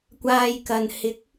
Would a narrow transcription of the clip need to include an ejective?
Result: no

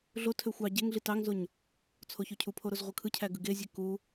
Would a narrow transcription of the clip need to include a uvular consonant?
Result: yes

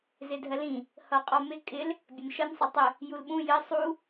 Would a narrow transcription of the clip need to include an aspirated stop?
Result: no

